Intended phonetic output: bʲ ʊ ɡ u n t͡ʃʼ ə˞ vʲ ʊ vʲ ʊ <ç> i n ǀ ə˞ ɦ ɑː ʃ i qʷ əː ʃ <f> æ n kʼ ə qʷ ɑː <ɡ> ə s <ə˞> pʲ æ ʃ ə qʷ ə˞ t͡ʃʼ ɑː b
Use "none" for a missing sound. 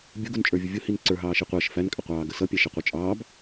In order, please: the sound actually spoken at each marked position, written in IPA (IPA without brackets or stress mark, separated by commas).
h, f, ɡ, ʌ